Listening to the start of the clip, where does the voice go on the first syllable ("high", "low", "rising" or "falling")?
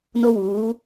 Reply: high